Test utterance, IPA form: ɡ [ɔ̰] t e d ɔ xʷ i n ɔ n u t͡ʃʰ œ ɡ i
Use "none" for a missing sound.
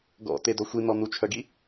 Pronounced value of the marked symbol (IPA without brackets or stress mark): ɔ̰